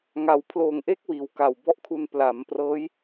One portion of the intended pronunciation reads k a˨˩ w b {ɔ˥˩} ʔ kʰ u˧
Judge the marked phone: correct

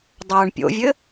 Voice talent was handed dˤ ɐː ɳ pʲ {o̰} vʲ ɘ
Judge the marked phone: correct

